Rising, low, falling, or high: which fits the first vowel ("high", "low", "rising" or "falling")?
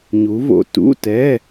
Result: rising